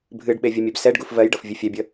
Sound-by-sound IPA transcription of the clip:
bʱ ɨ ɖ ɓ e vʲ ə mʲ ɛ b s ɛ ɖ ɡ u f v ɜ j ɖ ɤ f vʲ ɨ fʲ ɛ bʲ ə

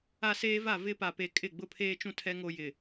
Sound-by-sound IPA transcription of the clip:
a˦ s eː˦ v a˦˨ v ɪ˦ p a˨ p e˨ kʼ ɪ˦˨ ɡ͡b ʊ˦ pʰ eː˦ t͡ʃ ũ˦ tʰ ɛ˦ ŋ o˦ j ɪ˨

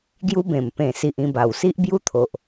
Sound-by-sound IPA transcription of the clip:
ɡ j u˦ b ẽ˨˩ m p ẽ˨˩ s i˨ ʔ ĩ˧ b a˨˩ w s i˦ ʔ b j u˦ t̪ʰ o˨ ʔ

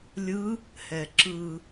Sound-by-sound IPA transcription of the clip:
lʲ ɯ | h ɛ ǁ ɯ

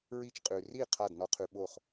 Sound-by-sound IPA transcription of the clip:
ɹ i˧ t͡ʃ qʼ ʉ˩ r i˥˩ qʰ a˥˩ d n ɔ˧ qʰ ʉ˧ ɓ o˥˩ χ

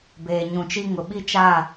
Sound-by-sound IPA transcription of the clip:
b eː˨ ɲ ũ˨ t͡ʃ i˦ ŋ ʊ˨ ɓ i˦ t͡ʃ a˦˨

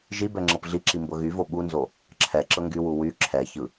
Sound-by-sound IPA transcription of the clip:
ʒ i b ɛ ŋ͡ǁ ɤ p ɮ i ǁ i m b ɤ ɣ y v o ɓ u n z o | ǁʰ ɛ ǁ ɤ ŋ ɡ y w u w y ǁʰ ɛ ç ɯ

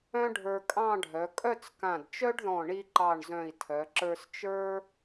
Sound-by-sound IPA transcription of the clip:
œ̃˥ ɖʱ ə˞˧ kʼ ɑ̃˥˧ ɖʱ œ˩˧ kʼ œ˥˧ t͡s k ã˧˩ d t͡ʃ œ˥ ɖ ð ɔ̃˧˩ ɳ i˧ ǃ ɑ˧˩ ɳ z œ̃˧˩ i̯ tʰ œ˩˧ ǁ ə˞˧ s t͡ʃ ə˞˥

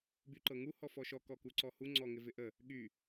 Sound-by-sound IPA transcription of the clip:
b y ǃ ɤ ŋ u h ɔ f ɔ ʃ ɔ k ɔ k u ǀ ɔ h u ŋ͡ǀ ɔ ŋ ɪ v ɪ ʔ ə | ɠ y

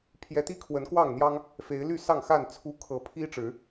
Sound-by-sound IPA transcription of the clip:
pʰ j ɛ˨˦ t̪ i˥˨ kʰ w ə˨˦ n k w ɑ˥˨ ŋ n̪ j ɑ˦ ŋ | f e˨˦ ɪ̯ l y˥˨ s ɑ˥˨ ŋ x a˥˨ n t͡sʰ u˦ kʰ ɤ˨˦ pʰ i˦ ʈ͡ʂ ɻ̩˨˦

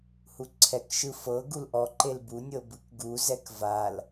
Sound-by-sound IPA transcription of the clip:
h u ǀʰ ɛ k ʃ ɯ f ɤ ɡ u l ʔ ɔ ǃ e l b u nʲ ɤ b ɯ k ɡ u z ɛ k v a l

